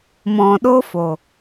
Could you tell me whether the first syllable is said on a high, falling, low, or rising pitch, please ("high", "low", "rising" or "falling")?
low